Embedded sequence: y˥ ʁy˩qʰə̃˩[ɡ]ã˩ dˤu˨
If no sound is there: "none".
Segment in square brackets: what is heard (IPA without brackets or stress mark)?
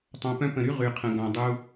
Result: ɡ